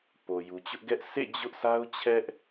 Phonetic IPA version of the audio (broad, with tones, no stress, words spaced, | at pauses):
po˨ju˨t͡ɕʊ˦ʔɡɛ˦ʔ sʰḛ˦˨ d͡ʑʊ˦ʔsa˦ʊ̯t͡ɕʰɛ˦ʔ